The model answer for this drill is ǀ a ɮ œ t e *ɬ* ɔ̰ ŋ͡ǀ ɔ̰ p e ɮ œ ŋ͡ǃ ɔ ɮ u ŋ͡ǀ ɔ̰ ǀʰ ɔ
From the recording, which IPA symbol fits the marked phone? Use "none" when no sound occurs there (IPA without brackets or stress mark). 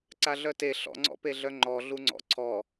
ɬ